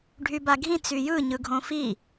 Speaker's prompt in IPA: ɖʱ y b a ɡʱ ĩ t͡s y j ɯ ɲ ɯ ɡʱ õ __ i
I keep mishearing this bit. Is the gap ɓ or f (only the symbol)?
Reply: f